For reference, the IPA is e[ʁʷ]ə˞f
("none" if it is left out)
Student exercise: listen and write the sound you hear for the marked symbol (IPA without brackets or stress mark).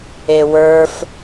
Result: w